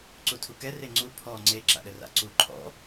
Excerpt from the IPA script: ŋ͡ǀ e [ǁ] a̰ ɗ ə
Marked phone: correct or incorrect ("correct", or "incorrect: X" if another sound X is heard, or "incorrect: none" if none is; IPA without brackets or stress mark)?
correct